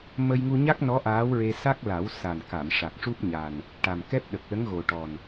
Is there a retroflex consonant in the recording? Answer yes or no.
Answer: yes